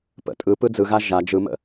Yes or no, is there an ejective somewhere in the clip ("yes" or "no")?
yes